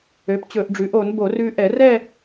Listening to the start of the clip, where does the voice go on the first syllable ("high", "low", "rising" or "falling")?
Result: rising